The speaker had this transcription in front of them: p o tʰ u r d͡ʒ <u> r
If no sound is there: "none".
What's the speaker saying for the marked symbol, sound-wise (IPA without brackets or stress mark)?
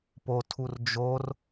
o